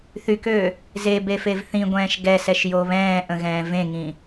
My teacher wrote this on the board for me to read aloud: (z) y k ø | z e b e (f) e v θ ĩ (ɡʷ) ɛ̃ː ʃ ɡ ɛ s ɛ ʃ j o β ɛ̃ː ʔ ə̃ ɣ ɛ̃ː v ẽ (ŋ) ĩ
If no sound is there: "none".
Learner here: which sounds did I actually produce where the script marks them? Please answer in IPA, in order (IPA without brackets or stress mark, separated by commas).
θ, f, ɡʷ, ŋ